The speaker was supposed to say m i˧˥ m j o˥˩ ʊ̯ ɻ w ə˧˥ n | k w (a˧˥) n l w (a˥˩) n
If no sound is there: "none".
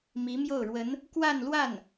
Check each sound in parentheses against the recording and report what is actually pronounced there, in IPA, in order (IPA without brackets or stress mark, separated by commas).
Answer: a˥˧, a˥˩